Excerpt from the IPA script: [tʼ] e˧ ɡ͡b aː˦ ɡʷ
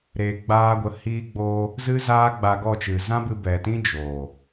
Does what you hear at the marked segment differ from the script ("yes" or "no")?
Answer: yes